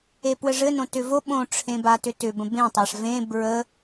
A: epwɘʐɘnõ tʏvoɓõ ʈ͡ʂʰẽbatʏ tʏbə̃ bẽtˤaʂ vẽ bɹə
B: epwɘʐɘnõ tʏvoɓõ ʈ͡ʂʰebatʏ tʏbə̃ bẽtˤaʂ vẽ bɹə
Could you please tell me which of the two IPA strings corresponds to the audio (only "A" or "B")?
A